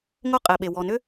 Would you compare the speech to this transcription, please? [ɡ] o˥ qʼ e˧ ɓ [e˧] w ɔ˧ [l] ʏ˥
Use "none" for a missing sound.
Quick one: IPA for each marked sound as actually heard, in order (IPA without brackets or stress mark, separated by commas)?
ŋ, e˧, n